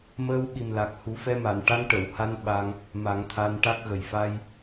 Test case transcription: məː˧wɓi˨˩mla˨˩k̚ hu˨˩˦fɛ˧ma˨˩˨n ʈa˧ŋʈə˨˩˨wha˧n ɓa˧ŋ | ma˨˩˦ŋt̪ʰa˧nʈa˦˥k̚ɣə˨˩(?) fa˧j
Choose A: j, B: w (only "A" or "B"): A